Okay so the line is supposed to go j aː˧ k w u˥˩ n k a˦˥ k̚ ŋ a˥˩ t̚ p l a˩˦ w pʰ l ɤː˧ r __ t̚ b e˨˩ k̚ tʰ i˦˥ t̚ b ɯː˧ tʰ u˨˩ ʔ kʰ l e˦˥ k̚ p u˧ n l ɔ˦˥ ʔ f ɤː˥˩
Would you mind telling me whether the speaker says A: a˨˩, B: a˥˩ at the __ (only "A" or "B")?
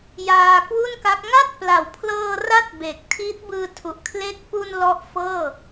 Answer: B